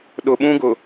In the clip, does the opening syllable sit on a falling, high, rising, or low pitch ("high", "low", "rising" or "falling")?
low